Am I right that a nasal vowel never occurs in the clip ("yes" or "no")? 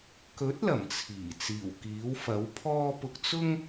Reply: yes